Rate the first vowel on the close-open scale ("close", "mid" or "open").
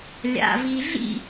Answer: open